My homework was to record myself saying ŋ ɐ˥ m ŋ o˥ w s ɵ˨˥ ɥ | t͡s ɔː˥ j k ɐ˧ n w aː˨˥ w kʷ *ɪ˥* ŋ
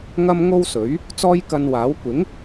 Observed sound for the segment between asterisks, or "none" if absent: ɪ˨˥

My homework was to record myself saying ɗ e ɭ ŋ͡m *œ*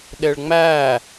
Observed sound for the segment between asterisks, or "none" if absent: æ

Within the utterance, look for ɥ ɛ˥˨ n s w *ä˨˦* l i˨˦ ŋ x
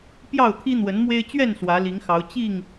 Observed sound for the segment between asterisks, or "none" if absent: ä˨˦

